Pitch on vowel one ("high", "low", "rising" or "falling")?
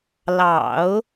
low